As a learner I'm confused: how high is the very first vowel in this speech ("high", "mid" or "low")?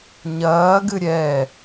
low